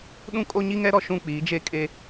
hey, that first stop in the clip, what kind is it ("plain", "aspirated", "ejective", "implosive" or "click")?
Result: implosive